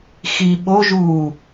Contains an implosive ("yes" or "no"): yes